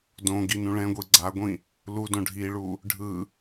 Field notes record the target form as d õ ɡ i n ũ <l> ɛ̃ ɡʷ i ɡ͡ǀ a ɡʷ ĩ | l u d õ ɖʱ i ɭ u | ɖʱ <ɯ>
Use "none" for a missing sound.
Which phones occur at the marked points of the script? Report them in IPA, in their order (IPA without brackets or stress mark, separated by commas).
ɭ, ɯ